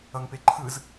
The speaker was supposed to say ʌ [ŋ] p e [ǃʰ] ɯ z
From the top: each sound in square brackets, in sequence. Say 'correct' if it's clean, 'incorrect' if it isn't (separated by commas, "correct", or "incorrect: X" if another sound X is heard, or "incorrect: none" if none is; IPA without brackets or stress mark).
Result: correct, correct